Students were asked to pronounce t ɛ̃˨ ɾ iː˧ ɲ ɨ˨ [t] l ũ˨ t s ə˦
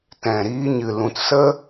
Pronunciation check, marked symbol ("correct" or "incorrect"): incorrect